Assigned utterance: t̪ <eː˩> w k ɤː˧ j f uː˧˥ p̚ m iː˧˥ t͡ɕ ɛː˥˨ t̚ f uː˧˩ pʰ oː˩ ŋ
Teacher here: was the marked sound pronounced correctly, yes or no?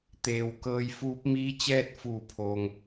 yes